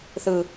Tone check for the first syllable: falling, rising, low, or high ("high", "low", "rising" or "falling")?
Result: low